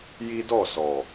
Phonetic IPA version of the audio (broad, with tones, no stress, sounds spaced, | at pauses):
j i˦ d ɔ˦˨ s ɔ˨